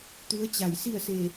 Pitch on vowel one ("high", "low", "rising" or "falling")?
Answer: rising